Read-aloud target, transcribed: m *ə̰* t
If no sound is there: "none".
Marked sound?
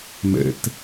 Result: ə̰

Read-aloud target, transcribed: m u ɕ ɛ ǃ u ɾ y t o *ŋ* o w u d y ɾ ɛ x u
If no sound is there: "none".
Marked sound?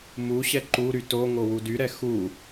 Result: ŋ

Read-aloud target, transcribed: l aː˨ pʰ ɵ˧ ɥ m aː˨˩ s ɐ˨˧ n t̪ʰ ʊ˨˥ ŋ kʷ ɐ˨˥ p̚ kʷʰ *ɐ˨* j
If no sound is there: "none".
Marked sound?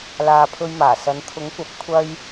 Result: ɐ˥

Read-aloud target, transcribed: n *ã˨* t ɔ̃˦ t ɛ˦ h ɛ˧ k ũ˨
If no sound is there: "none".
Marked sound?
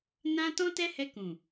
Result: ã˦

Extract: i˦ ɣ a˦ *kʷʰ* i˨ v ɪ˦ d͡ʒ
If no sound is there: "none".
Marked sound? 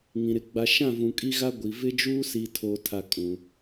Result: ɡʷ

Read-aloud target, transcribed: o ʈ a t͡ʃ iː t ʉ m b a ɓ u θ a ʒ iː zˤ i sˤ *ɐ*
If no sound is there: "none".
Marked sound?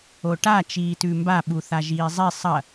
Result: ɐ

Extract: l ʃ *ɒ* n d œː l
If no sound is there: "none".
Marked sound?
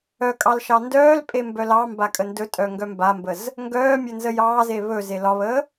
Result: ɑ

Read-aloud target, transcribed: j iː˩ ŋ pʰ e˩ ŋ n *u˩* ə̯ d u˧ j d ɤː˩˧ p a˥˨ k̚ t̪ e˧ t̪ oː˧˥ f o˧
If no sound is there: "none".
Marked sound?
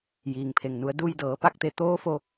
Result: u˩˧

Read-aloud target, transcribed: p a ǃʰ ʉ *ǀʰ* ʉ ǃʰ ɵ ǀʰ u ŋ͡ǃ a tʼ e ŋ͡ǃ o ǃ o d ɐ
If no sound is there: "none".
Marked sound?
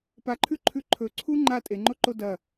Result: ǃʰ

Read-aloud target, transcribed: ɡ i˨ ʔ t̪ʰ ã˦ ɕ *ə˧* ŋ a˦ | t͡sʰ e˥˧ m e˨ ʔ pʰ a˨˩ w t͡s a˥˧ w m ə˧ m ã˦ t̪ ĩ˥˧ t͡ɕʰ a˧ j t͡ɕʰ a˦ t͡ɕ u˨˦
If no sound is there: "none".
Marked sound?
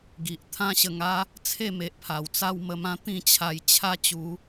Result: ə˧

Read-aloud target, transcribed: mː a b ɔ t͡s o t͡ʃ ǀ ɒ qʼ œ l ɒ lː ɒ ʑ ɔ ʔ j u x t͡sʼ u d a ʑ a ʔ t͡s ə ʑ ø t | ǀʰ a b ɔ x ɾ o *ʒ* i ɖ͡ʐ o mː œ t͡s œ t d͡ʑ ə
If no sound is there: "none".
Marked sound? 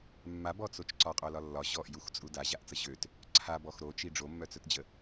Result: t͡ʃ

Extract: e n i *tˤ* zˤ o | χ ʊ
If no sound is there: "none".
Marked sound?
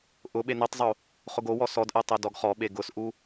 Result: tˤ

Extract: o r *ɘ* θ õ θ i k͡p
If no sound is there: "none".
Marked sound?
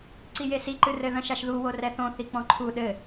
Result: ɛ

